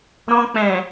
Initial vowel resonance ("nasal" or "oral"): nasal